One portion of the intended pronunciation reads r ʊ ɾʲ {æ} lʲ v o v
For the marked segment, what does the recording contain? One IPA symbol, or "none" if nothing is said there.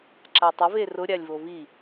a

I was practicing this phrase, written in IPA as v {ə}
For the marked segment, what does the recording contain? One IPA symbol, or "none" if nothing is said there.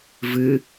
ɨ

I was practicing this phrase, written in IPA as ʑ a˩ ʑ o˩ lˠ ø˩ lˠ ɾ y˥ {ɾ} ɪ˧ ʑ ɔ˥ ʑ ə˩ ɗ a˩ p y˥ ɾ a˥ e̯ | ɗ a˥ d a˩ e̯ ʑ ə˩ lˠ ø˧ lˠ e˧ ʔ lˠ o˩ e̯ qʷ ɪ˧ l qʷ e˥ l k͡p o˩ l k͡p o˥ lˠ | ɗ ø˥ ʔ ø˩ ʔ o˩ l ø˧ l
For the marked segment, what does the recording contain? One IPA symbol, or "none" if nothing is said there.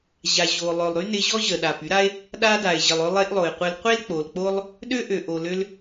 n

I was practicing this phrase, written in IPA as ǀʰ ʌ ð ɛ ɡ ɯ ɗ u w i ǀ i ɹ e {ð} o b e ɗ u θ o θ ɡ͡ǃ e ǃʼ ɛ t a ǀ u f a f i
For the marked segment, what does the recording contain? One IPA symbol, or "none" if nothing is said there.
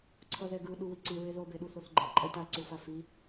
ð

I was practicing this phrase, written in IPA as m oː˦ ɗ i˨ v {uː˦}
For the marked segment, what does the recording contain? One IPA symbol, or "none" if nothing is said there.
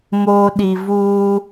uː˦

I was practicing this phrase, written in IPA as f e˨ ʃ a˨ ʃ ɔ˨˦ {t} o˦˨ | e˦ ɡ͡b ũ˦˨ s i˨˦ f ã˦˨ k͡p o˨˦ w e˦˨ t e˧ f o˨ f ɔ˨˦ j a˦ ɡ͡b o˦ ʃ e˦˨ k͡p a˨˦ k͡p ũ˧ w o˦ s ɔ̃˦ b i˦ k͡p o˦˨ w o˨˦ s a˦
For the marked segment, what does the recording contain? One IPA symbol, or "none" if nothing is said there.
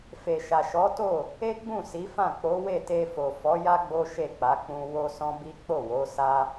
t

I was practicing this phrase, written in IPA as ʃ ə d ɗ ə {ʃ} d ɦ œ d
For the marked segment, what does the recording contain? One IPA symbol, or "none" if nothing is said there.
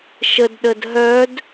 none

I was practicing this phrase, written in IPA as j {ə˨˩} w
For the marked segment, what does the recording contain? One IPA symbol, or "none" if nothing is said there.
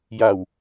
a˨˩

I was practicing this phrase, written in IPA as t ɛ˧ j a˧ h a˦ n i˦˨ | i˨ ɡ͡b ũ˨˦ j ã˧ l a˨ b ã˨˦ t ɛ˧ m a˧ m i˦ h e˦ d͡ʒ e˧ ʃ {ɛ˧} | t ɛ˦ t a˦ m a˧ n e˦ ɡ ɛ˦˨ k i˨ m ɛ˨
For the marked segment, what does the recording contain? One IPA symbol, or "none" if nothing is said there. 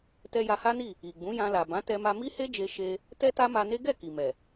e˧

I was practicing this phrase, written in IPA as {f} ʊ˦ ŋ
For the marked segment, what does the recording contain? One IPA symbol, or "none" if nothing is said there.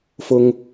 f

